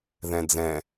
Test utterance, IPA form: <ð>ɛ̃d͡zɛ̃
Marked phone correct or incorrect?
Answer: correct